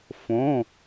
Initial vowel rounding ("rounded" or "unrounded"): rounded